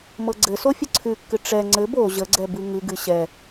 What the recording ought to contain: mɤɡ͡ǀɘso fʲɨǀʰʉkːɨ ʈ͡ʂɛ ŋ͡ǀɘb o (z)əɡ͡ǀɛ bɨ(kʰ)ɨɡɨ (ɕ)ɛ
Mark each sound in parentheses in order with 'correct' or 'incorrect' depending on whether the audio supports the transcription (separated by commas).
incorrect, incorrect, correct